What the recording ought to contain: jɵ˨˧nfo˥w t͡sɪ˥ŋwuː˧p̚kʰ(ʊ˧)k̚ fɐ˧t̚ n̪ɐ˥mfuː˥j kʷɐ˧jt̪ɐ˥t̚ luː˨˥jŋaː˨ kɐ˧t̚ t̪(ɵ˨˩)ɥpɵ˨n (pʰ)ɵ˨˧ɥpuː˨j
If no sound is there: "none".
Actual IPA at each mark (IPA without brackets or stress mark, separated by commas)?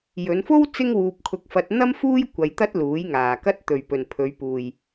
ʊ˧, ɵ˨, pʰ